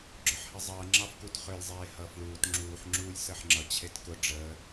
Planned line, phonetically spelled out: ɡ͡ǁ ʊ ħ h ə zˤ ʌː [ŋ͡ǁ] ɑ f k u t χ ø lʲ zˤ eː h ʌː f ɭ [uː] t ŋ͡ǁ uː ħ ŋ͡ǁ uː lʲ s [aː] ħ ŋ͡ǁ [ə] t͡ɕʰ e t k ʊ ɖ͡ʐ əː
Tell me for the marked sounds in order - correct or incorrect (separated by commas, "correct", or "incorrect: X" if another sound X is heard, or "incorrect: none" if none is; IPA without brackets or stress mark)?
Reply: correct, correct, incorrect: əː, incorrect: ʌ